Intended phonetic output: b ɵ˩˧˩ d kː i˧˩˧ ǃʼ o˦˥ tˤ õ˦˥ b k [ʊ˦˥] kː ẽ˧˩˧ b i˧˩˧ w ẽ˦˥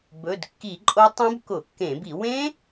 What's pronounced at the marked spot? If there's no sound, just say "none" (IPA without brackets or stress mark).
ʊ˧˩˧